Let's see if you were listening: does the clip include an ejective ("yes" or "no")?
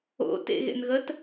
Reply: no